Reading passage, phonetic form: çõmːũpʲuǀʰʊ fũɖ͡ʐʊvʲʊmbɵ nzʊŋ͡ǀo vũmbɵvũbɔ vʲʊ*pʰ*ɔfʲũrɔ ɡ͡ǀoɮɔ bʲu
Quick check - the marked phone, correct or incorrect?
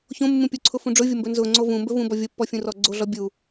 incorrect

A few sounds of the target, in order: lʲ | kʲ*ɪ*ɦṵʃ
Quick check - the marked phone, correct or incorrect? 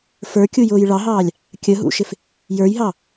incorrect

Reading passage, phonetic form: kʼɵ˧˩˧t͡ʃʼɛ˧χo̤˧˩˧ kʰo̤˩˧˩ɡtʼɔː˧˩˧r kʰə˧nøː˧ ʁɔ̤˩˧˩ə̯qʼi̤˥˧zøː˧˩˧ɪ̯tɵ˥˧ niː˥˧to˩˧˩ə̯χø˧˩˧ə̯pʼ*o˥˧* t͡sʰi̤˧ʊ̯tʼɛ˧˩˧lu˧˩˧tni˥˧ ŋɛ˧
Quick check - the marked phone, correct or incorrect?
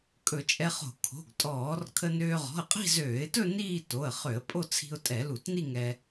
correct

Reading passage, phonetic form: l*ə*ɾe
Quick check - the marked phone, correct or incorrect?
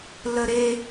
correct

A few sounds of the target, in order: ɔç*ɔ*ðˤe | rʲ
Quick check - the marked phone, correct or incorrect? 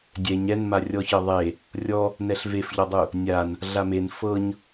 incorrect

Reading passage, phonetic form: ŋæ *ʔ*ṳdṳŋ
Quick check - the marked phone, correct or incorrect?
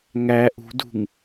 correct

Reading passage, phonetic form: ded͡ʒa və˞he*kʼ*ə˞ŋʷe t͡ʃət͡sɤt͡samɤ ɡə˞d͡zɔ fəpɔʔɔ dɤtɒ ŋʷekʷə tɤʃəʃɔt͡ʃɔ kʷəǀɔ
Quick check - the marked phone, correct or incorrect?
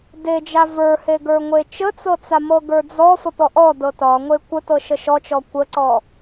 incorrect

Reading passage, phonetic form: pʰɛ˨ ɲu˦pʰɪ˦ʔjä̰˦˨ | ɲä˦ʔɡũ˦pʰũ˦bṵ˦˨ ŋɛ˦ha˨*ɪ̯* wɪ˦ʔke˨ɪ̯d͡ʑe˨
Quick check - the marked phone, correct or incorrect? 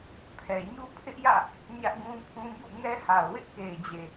incorrect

